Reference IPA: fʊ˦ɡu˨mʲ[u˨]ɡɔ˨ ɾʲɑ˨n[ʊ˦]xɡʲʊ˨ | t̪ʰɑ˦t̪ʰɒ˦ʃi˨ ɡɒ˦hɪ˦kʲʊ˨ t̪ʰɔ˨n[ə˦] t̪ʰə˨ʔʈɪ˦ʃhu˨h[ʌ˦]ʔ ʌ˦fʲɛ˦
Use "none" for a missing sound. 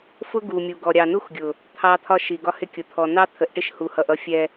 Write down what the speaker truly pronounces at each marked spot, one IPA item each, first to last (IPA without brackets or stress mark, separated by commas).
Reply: u˨, u˦, ɑ˦, ʌ˨